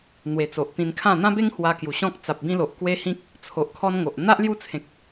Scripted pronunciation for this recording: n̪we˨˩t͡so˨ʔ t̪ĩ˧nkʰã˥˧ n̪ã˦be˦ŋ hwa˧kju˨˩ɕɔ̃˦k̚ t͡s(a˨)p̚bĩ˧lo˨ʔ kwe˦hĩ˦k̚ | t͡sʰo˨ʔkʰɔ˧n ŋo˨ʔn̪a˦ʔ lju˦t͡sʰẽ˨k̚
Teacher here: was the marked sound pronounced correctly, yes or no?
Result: yes